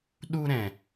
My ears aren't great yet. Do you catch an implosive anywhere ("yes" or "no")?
yes